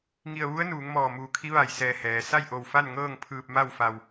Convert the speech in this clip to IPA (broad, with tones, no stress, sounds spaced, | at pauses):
ŋ i˧˩ ə̯ ʋ u˧˥ ə̯ n uː˩˧ ŋ m ɔː˧˩ m uː˧˩ kʰ i˧˥ ʋ a˧˩ j s ɛː˧˩ h ɛː˩ s a˥˨ j ʔ o˧˩ w f a˥˨ n ŋ ɤː˥˨ ŋ pʰ ɯː˧ p̚ m a˥˨ w f a˧ w